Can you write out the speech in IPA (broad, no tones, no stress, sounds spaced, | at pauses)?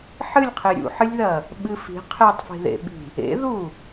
ħ ɨ lʲ qʰ e ɾʲ ṵ ħ ɨ lʲ ð ɐ | ɓ ɨ f i̤ qʰ e tˤ f i̤ ð ḛ ɓ i̤ | ḛ ð u